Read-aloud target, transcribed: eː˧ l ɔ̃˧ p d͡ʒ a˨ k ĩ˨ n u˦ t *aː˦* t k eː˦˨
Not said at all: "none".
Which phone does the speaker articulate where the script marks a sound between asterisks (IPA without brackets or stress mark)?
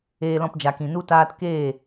aː˦